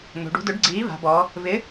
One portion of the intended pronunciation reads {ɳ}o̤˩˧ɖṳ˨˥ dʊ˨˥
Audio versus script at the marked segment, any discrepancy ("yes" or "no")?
yes